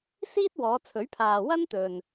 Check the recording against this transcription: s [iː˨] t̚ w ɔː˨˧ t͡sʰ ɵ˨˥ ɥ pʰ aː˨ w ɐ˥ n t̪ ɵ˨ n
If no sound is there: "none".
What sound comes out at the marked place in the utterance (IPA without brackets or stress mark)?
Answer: iː˥